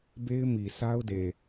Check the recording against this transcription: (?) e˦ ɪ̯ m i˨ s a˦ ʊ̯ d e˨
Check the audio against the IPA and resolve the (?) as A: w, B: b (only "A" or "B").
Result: B